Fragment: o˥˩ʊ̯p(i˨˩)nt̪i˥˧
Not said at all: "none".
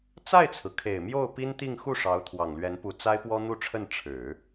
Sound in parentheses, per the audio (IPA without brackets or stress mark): i˥